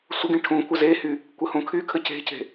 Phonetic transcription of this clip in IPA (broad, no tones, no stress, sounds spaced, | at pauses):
sʷ ə ɡ ĩ ʈʰ ũ kʷ ə z e h y | kʷ ə h ũ kʰ y kʰ ə c e̤ c e̤